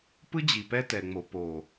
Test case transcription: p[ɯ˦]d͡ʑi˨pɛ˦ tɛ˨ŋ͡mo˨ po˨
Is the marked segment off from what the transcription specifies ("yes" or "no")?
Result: no